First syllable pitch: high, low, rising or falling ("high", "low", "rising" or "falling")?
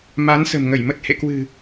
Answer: rising